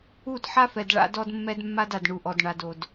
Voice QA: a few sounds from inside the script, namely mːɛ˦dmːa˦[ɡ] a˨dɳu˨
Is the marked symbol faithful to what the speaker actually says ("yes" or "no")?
no